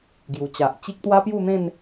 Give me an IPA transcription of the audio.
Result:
ɡ j u˨˩ t͡ɕ a˨ ʔ t͡ɕ i˦ k̚ t̪ w a˦ p j u˥˧ n̪ ẽ˥˧ n

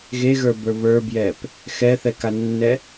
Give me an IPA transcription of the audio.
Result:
ɣ e ɣ ə˞ b ə˞ β ə˞ b j ɛ p | x ɛ θ ɛ k a nː ɛ

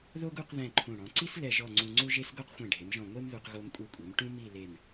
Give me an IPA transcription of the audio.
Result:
ð o˥ ɡ u˥˧ q ð ɛ̃˥˧ ǃʰ ũ˧˩ ɽ ɔ̃˩˧ ǀ i˥ s l ɛ˥˧ ʒ ɔ˥˧ ŋ͡ǀ ũ˧ ŋ͡ǀ u˥ ʒ e˥ s ɡ o˥ q xʷ ɛ̃˧˩ ɖʱ e˩˧ m ʒ ɔ̃˧˩ ŋʷ e˥ m ð u˧ q ɣ o˧ m kʷʼ ɯ˧˩ kʷʼ e˩˧ m ʈ ũ˥ m i˥˧ l e˧˩ m

